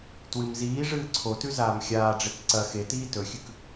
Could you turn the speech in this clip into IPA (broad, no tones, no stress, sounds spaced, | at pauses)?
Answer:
t w ɨ m z iː ʐ ɨː ǀʰ o t ʉ z aː m xʲ aː ɖ͡ʐ e k ǀ ɐ x e t iː t ɵ xʲ ʉ k